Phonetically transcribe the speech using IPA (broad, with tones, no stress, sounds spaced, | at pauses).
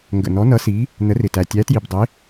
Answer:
ŋ ɡ ə̰˨˩ n ɔ˨˥ n ʌ˨˥ s i˨˥ | n ə˨˥ r ɪ˨˩ t æ˨˩ tʲ æ˨˥ t j i˨˩ b dˤ ɪ˨˥